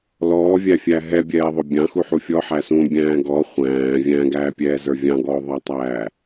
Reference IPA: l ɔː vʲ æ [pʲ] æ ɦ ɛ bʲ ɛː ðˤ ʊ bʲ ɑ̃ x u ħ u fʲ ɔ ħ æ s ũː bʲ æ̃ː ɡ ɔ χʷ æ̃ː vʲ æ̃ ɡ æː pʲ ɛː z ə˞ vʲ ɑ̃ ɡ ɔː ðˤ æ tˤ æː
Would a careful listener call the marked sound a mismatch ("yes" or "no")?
yes